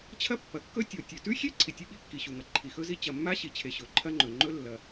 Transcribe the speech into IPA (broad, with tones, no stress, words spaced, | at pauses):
t͡ɕʰɐ˥pːɐ˩kːɵ˥ tʲo˩tʲʉ˩tʉ˥xʲe˥ ǀʰi˩tʲɨ˥ɓi˥ kːi˩ɕu˩ŋɐ˩ ǃʰi˩xɵ˥zi˥ t͡ɕɐ˩mːa˥ɕi˩t͡ɕʰe˩ ɕɵ˩ǃʰɐ˥ŋ͡ǃɵ˩ ŋ͡ǃɵ˥ lːɐ˩